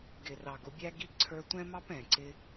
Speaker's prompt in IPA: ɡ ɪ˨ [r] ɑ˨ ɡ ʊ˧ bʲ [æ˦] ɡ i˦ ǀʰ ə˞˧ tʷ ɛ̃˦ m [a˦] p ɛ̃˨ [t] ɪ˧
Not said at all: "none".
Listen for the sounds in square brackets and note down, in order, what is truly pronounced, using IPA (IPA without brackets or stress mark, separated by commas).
r, æ˦, ɑ˦, ǀ